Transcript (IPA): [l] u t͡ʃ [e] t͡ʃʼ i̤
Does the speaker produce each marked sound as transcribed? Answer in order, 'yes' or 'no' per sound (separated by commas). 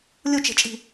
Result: no, no